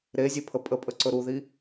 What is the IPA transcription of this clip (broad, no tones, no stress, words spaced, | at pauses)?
ɾezʲepʰə pʼəpʼə ǀɵɾuði